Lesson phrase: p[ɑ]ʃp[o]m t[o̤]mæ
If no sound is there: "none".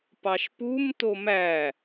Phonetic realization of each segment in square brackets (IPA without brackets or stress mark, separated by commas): ɑ, u, o